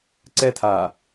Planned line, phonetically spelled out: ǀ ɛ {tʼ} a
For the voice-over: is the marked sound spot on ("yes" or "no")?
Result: no